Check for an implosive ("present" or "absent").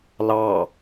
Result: absent